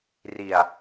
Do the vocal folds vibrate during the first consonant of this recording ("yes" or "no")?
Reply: yes